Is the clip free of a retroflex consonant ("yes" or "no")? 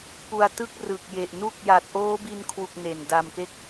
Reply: yes